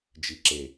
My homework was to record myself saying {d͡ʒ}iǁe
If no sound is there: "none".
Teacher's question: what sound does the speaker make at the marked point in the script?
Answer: d͡ʒ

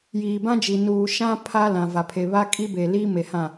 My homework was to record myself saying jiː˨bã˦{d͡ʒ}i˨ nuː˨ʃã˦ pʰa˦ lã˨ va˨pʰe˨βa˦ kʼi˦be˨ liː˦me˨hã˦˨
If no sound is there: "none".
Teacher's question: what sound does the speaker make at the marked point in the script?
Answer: d͡ʒ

